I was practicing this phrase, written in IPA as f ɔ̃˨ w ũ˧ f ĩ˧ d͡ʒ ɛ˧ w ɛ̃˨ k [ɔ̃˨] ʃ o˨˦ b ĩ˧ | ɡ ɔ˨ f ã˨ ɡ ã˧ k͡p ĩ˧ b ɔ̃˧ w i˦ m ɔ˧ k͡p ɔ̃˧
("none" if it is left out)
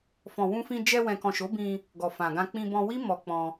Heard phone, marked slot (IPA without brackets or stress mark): ɔ̃˨